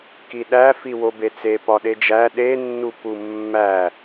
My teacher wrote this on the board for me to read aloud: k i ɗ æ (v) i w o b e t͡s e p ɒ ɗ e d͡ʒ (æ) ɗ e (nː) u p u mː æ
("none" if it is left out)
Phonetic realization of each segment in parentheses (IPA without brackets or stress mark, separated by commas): f, æ, nː